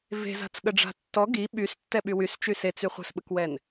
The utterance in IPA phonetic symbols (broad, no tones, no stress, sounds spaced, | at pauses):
v e̤ z a̤ t͡s ɠ ə ɖ͡ʐ a̤ tː ɔ ɡ i ɓ y s tː ɛ ɓ y w y s t͡ʃ y s e t͡s y χʷ ə̤ s ɓ ə k w ɛ n